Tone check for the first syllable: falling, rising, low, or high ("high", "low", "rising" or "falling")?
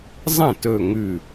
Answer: falling